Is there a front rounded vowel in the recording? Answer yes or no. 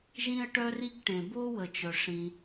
yes